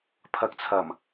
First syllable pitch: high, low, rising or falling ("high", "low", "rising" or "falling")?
rising